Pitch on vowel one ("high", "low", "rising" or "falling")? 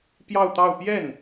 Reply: falling